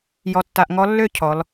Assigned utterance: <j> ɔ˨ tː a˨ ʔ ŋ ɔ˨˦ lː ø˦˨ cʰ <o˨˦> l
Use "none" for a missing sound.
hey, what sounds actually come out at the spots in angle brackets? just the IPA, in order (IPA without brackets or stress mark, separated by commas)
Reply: j, ɔ˨˦